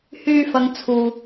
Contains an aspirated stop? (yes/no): yes